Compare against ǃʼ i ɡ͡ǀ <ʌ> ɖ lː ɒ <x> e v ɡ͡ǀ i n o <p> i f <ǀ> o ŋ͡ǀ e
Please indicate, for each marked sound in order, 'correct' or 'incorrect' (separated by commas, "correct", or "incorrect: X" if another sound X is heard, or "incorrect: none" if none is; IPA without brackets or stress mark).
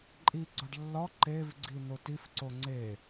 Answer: incorrect: ɒ, incorrect: ǃ, incorrect: t, correct